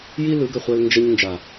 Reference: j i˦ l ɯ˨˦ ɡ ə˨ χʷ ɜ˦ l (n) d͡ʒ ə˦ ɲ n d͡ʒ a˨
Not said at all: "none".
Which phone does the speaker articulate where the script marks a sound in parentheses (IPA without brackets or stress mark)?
n